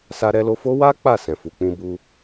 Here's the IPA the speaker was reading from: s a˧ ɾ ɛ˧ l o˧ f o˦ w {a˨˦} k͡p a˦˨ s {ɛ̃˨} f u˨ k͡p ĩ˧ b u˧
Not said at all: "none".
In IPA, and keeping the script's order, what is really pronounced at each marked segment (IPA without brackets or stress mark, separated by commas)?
a˦, ɛ̃˨